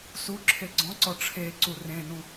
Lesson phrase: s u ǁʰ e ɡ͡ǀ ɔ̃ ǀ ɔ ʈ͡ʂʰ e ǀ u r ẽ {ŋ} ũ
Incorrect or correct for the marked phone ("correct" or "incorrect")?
incorrect